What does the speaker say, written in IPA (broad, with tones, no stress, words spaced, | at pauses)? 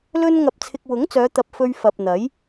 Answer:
lɵ˥n ŋɐ˨p̚t͡sʰɪ˨k̚ wʊ˨˥ŋt͡sœː˨˧t̪ɐ˨p̚ fɵ˧ɥfɐ˨p̚ n̪ɐ˨˥j